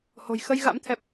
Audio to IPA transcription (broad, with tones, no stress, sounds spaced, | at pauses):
h o̤˨˩ j x ə˧ j ɣ a̰˧˥ m t̪ʰ ɛ˨˩ p̚